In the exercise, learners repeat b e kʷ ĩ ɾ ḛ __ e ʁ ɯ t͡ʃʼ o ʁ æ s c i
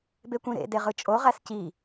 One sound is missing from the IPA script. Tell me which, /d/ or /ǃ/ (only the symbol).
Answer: d